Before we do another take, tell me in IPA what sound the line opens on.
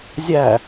zʲ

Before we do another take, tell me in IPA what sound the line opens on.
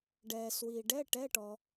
ɖ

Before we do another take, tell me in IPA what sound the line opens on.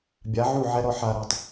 bʲ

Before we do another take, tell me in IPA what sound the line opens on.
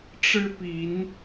ʈ͡ʂ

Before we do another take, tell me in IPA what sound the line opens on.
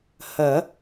h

